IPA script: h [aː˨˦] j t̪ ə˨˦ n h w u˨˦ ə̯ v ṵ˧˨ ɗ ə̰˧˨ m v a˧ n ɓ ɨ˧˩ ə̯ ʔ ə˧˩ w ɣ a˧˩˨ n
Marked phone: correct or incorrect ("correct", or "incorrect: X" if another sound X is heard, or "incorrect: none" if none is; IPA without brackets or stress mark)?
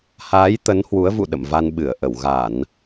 correct